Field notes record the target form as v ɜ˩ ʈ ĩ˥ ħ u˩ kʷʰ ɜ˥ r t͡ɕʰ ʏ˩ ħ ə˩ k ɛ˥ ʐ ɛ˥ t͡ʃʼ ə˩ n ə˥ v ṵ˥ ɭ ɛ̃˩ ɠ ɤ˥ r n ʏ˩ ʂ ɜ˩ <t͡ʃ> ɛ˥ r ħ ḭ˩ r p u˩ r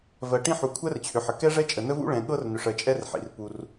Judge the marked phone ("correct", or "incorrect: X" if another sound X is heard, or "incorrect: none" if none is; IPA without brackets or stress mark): incorrect: t͡ʃʼ